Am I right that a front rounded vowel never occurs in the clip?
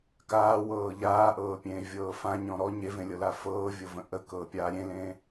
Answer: yes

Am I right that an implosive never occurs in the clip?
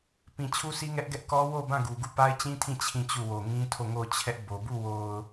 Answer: yes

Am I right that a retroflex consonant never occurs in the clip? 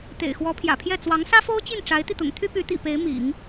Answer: no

